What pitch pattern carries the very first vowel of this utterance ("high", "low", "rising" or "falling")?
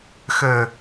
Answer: low